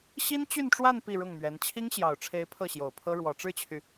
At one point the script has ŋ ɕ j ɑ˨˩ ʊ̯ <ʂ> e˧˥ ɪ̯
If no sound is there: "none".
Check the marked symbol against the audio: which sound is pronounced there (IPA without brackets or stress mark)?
ʈ͡ʂʰ